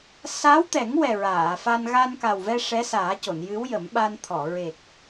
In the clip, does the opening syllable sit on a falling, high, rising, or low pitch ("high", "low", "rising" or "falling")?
rising